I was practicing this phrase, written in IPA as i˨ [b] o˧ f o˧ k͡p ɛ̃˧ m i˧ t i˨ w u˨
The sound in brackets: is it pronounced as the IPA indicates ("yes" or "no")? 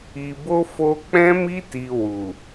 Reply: yes